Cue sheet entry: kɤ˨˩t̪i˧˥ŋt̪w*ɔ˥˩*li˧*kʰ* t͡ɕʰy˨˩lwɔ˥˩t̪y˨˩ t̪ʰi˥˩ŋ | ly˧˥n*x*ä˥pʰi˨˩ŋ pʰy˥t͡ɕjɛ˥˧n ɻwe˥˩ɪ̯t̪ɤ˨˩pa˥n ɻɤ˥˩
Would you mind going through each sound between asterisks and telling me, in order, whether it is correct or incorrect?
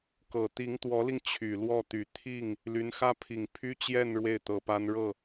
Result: incorrect, incorrect, correct

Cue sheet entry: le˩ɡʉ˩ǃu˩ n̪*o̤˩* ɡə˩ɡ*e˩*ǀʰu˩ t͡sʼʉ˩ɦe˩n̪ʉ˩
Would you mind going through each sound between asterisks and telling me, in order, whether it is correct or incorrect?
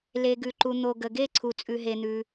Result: incorrect, incorrect

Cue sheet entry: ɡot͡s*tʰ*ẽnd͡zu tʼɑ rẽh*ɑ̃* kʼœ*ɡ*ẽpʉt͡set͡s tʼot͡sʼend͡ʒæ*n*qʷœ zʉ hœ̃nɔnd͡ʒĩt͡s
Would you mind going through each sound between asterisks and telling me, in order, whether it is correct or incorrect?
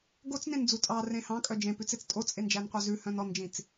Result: incorrect, correct, incorrect, correct

